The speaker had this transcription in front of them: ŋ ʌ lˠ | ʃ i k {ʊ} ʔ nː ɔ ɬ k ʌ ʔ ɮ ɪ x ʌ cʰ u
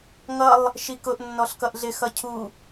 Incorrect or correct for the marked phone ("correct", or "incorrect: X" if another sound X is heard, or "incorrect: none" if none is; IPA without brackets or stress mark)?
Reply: correct